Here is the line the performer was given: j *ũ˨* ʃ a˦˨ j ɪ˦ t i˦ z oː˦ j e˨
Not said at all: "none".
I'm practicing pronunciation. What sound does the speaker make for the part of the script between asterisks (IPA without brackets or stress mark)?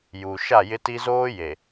u˨